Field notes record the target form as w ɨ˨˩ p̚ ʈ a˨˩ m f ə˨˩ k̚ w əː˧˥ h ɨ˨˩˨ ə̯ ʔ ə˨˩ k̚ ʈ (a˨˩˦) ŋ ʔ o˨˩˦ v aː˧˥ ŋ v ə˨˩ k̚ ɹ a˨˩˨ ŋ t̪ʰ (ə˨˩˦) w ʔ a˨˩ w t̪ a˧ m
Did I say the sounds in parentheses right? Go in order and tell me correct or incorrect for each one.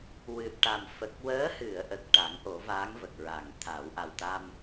correct, incorrect: a˨˩˦

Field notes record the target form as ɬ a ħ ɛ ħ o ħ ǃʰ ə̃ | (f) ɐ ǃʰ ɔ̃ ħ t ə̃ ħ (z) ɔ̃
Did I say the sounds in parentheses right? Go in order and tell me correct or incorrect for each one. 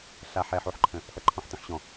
correct, incorrect: ɕ

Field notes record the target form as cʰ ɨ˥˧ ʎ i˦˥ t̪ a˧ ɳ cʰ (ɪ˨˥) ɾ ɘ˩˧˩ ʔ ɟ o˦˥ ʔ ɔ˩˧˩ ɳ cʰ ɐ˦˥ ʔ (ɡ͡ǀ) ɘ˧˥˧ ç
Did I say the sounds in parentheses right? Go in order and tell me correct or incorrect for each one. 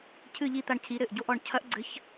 incorrect: i˨˥, correct

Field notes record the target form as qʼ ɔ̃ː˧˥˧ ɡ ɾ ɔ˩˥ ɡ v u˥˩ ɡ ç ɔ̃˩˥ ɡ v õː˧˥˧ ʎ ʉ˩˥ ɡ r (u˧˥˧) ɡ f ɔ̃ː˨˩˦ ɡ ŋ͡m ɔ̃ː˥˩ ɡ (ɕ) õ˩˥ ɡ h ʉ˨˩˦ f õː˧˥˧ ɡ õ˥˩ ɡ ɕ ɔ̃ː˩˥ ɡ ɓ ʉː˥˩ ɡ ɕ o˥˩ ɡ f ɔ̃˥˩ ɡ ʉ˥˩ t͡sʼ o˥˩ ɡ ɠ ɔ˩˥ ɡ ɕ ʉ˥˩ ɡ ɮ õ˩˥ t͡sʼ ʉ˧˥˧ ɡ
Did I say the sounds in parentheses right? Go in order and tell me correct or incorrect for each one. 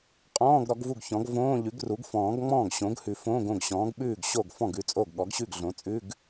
incorrect: u˩˥, correct

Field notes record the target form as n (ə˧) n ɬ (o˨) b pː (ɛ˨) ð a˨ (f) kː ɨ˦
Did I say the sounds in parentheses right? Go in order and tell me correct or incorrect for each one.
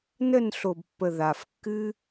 incorrect: ə˦˨, correct, incorrect: ə˨, correct

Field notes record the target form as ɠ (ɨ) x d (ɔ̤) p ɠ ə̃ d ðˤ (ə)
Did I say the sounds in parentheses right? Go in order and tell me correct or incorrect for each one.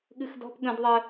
correct, correct, correct

